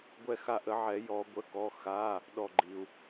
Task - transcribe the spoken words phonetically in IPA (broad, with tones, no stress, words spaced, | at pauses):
ɡʷɛ˦˨xa˦ʔə˨˩˦ʕɛ˨˩˦ jɔ˨˩˦ɡʷə˩˧˩kɔ˩˧˩ xa˩˧˩ | ɗɔ˦˨ɡ͡ǃi˩u̯